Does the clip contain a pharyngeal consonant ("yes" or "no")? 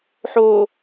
yes